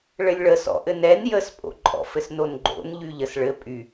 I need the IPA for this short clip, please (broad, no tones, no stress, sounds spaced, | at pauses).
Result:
ɭ ɘ lʲ ɭ ə s ɔ̰ ʔ ɘ n ɛ n j ə s pʼ o̰ ǃʼ ɔ̰ f ɘ s n o n ɡ͡ǃ o̰ n ʎ y ʎ ə s ɭ ɘ pʼ y